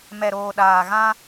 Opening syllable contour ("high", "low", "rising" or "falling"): low